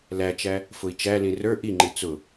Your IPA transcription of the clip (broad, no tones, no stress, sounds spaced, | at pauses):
l æ t͡ʃ æ | f ʊ i̯ t͡ʃ æ l ĩ r ə˞ ʔ i ŋ͡ǃ i t͡s ʊ